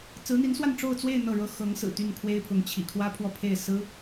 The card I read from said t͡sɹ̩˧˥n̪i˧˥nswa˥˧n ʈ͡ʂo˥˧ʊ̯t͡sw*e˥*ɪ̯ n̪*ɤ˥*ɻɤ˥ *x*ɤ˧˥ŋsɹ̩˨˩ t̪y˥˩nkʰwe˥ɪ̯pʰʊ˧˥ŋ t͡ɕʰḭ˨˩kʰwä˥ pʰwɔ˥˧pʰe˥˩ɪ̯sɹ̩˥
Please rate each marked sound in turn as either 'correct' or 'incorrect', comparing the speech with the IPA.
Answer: incorrect, incorrect, correct

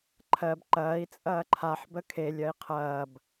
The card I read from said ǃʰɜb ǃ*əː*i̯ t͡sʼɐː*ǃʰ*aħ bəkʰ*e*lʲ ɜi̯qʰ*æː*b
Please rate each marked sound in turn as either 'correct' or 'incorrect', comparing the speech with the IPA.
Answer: incorrect, correct, correct, incorrect

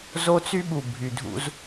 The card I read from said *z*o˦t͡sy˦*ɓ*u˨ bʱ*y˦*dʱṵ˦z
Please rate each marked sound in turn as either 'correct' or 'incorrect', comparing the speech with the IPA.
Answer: correct, correct, incorrect

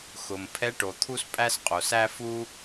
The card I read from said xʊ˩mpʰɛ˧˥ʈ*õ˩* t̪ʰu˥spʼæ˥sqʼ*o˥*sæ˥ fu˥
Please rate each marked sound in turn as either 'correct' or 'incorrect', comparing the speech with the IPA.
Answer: incorrect, incorrect

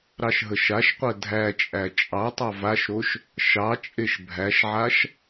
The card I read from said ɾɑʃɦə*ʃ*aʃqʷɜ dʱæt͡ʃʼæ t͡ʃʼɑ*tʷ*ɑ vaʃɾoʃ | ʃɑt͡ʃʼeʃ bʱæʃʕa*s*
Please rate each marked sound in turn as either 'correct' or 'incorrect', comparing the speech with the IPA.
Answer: correct, incorrect, incorrect

